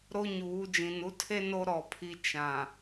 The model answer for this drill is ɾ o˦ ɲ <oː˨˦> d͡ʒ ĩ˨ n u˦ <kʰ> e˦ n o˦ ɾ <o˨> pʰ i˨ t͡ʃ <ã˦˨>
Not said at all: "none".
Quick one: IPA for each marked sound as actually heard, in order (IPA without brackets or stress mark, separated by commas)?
uː˨˦, tʰ, ɔ˨, ã˨